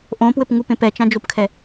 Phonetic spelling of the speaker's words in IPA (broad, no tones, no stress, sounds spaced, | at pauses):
ʔ õ p w ɘ p ŋ u p ẽ p ɛ t͡ʃ ã d͡ʒ o p kʰ ɛ